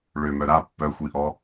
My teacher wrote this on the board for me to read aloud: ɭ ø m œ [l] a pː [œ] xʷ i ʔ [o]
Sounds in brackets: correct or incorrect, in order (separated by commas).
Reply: incorrect, correct, incorrect